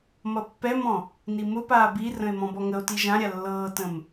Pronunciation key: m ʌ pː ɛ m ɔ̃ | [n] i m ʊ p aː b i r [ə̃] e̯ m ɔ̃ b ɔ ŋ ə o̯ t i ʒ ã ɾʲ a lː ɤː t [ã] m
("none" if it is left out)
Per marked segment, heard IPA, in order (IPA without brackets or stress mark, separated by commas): n, ə̃, ə̃